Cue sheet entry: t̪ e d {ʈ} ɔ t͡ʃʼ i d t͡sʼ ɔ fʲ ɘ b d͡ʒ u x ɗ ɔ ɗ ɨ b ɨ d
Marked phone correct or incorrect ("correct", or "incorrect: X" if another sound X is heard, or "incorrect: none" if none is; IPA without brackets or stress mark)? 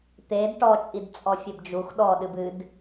correct